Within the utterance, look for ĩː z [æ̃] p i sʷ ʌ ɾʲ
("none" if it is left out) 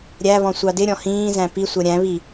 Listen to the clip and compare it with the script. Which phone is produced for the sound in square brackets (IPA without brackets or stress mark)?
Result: æ̃